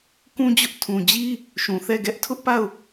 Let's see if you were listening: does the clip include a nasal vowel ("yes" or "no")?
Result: yes